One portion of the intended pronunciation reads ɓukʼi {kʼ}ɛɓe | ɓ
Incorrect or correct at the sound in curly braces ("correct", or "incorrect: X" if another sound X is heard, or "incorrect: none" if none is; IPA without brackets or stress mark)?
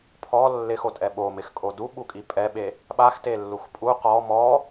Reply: incorrect: pʼ